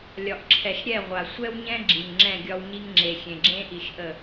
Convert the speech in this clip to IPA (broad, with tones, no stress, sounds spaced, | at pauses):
lʲ ɒ˨ ʔ ǁʰ ɛ˨ ʃ ɾʲ ɛ˦˨ ʁʷ a˨ sʷ ɛ˦ w ɲ ɛ̃˦ ɡ͡ǁ i˨ ŋ ŋ͡ǁ ɛ̃˦˨ ɡʲ ɒ˦ w ɲ i˦ ŋ ŋ͡ǁ e˨ xʲ ẽ˨ ɡ͡ǁ ẽ˦ ʔ i˨ ʃ ʔ ə˦˨